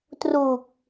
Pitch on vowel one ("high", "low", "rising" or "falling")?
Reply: low